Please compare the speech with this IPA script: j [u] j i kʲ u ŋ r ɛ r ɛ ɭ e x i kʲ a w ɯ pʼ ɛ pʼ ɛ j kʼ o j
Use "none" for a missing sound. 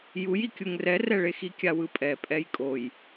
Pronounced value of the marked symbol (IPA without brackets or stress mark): u